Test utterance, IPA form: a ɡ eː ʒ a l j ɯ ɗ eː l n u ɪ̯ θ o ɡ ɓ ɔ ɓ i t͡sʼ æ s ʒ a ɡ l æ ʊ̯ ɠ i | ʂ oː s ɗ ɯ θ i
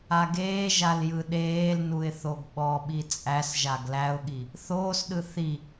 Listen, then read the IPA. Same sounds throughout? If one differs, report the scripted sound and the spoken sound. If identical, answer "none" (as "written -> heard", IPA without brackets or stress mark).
ʂ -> θ